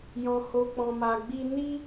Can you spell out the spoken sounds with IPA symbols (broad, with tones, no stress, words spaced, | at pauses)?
jɔ̃˧ho˧k͡pɔ̃˧ma˧ ɡ͡bi˦ ni˦